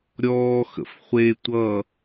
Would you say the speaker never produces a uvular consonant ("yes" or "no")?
no